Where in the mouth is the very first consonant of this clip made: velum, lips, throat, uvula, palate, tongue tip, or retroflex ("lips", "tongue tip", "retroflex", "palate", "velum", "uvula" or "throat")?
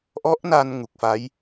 throat